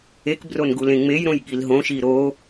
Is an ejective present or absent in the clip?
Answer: absent